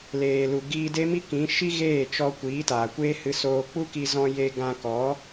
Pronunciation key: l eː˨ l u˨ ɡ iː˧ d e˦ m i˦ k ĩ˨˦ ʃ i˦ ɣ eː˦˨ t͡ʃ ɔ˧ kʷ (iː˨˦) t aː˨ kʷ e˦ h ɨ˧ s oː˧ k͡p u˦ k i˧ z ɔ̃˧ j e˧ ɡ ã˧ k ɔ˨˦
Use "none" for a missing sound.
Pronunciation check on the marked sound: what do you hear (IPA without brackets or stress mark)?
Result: iː˨˦